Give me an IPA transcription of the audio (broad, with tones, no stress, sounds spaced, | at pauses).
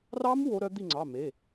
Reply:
r ɑ˦˥ m w o˦˥ ɾ œ˦˥ d̪ i˦˨ ŋ͡ǀ ɑ˩˧˩ m e˩˧˩